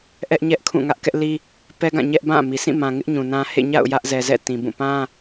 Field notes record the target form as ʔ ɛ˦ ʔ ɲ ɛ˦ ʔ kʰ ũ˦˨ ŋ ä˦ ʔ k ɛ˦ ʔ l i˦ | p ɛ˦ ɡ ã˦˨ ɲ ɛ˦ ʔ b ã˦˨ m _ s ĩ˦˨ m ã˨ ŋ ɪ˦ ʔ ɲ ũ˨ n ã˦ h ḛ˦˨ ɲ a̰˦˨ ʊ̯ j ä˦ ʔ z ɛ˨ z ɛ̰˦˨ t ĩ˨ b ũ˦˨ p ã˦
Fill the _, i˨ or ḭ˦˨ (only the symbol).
i˨